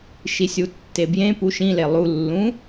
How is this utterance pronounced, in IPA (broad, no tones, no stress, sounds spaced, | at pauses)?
ʃ i sʲ u tː e b j ẽ p u ʃ ĩ l e lˠ u lː ũ